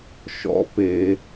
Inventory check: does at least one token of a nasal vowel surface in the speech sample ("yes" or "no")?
no